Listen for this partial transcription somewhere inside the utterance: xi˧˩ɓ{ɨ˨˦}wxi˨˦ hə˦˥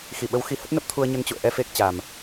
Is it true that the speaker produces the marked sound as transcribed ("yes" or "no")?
no